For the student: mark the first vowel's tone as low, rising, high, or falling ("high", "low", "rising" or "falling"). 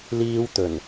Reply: high